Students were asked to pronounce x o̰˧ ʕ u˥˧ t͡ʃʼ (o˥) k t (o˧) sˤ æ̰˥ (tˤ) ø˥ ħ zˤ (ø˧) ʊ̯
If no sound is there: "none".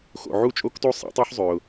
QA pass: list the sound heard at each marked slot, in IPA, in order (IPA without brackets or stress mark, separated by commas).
o˥, o˥, tˤ, ø˧